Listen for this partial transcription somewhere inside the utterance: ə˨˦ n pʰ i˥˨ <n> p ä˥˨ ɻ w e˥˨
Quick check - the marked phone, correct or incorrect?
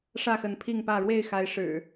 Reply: incorrect: ŋ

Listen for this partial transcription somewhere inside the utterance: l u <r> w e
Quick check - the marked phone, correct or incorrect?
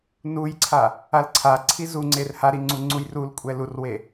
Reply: correct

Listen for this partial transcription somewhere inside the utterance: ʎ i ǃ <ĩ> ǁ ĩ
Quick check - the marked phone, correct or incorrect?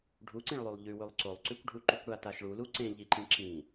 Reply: correct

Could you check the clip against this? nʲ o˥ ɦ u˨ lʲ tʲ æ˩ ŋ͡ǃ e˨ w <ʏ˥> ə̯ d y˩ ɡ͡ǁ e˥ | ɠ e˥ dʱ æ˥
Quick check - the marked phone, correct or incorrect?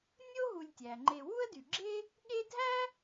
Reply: incorrect: u˥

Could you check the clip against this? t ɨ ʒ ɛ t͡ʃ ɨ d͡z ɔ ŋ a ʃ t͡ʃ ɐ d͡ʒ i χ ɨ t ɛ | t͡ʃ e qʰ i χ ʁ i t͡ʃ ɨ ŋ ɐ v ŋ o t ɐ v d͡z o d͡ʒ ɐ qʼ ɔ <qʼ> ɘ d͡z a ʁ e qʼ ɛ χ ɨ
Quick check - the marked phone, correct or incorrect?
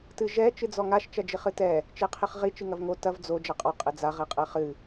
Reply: correct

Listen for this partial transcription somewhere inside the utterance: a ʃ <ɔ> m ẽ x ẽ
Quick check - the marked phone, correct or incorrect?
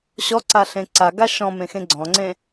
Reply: incorrect: ɔ̃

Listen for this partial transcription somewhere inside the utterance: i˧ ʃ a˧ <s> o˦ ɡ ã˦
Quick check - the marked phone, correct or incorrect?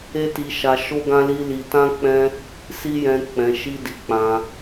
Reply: incorrect: ʃ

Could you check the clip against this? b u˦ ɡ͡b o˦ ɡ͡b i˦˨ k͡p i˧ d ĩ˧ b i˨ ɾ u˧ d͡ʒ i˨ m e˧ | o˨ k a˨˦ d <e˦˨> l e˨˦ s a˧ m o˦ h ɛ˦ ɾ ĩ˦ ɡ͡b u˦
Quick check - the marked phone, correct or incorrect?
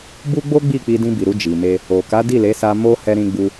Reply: incorrect: i˦˨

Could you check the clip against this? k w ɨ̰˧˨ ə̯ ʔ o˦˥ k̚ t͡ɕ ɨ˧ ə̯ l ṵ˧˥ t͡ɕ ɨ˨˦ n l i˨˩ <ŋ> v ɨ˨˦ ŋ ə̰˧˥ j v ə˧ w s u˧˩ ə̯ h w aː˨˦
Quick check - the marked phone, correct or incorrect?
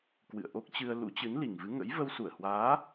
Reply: correct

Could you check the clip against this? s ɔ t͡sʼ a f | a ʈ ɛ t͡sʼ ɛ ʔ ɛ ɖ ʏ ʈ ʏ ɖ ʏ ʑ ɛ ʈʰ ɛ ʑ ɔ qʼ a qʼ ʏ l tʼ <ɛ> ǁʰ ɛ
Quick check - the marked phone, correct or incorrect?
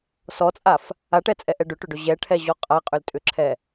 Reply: incorrect: ʏ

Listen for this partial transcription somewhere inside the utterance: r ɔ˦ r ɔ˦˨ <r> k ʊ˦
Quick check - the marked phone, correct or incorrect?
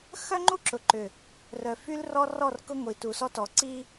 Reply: correct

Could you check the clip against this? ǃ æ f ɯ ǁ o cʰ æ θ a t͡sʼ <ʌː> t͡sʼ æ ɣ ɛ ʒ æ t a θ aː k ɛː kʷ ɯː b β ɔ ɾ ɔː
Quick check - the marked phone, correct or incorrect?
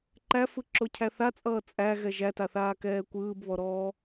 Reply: correct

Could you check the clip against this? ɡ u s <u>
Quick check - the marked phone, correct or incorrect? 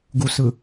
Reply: incorrect: ɯ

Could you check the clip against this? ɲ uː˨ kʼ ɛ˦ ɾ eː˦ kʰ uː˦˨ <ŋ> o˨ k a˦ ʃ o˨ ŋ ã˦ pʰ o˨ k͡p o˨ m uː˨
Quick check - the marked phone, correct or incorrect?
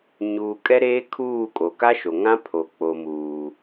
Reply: incorrect: kʼ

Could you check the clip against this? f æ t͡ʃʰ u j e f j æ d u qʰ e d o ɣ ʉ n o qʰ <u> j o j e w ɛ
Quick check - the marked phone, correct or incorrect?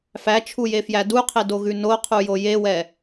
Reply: correct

